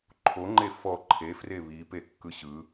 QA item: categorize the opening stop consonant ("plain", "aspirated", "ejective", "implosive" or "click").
click